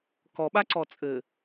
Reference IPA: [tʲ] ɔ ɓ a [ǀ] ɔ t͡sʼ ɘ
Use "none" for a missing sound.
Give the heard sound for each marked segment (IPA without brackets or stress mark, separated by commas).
k, ǀ